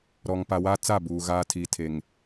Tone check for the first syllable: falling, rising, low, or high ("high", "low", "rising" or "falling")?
low